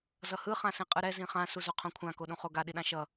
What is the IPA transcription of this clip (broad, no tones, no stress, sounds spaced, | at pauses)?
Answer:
z ʌ h ɯ χ ã s ĩ qʼ ɯ ɾ ɛ z ĩ χ ã s u z o qʰ õ kʷʰ ã k o ɗ ũ χ o ɡ a ɗ i ɗ ã ʃ ʌ